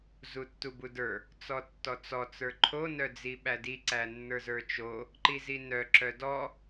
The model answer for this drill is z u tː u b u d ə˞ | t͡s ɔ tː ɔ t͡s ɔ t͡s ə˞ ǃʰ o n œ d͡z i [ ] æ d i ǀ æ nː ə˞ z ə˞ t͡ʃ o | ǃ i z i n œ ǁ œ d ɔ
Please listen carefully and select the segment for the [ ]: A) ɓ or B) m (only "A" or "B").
A